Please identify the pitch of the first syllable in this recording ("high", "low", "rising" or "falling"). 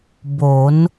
rising